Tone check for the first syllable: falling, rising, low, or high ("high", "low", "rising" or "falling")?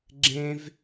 high